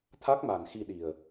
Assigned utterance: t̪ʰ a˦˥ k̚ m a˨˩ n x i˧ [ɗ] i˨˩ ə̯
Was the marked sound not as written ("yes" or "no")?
no